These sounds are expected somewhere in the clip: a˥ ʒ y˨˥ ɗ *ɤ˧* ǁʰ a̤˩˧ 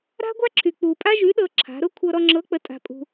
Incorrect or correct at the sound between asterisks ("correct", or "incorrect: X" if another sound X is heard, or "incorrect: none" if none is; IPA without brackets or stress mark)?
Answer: correct